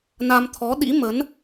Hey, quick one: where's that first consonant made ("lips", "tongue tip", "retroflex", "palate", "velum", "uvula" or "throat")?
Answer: tongue tip